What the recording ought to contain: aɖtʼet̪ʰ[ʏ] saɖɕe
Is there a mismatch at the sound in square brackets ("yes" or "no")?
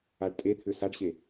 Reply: no